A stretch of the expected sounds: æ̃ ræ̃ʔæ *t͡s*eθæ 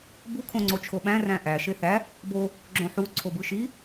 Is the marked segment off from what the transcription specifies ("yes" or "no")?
yes